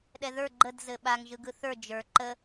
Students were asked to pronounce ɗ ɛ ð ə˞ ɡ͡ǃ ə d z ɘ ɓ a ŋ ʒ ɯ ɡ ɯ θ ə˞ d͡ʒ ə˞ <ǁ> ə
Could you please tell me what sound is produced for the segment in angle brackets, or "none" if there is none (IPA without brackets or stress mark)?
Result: ǃ